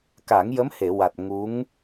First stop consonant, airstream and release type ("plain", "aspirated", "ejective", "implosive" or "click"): plain